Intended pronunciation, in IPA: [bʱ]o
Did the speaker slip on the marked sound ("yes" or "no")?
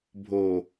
no